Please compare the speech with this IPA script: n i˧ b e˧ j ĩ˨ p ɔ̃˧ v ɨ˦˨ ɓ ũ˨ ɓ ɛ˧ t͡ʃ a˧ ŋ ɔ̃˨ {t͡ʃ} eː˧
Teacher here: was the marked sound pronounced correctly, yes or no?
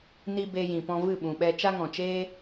yes